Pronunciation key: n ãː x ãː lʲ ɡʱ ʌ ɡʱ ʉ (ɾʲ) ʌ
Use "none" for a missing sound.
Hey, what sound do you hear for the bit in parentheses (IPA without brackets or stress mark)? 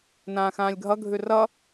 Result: r